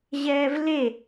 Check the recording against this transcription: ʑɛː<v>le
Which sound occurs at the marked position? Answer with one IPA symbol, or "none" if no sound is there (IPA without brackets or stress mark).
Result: v